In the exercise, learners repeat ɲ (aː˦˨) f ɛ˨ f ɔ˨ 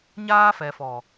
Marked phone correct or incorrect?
incorrect